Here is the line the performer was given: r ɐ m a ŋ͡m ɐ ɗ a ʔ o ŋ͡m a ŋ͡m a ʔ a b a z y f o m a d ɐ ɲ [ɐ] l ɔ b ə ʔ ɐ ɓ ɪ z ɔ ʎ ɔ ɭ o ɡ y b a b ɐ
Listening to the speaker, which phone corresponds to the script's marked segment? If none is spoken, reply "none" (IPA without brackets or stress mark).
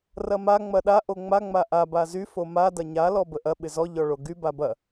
a